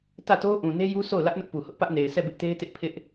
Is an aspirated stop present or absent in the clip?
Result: present